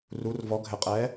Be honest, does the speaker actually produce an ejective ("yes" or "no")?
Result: yes